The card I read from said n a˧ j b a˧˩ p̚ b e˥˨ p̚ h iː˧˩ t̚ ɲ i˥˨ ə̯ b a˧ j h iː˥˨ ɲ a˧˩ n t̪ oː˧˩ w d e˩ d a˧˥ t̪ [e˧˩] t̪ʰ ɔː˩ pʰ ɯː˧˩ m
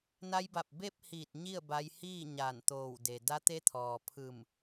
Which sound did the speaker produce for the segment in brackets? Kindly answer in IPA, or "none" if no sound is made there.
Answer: e˧˥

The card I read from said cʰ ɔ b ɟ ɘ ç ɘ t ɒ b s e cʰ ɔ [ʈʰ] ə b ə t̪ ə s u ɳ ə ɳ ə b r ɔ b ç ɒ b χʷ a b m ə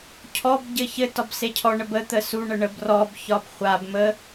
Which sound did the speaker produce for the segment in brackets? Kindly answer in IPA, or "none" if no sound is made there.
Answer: ɳ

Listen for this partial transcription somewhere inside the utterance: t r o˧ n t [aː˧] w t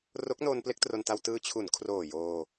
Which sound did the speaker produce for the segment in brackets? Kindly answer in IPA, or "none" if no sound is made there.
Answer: a˧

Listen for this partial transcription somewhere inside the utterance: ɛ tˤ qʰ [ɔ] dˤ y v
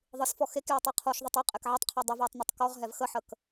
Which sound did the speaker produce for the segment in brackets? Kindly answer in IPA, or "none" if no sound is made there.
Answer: ɔ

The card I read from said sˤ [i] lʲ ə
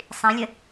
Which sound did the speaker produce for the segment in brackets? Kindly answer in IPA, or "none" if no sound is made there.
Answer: ĩ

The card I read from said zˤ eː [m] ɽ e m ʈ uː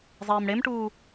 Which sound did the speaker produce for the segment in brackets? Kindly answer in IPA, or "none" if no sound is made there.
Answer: m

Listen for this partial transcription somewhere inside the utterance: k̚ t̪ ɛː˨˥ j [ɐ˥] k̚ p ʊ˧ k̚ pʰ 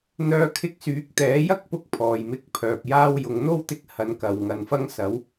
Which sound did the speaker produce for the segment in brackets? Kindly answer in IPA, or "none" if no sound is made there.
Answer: ɐ˥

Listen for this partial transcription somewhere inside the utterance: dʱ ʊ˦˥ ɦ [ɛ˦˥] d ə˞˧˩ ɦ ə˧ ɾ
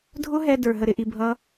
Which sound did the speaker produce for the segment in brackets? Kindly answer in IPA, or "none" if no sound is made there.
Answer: ɛ˧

